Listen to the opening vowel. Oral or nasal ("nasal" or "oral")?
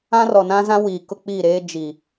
nasal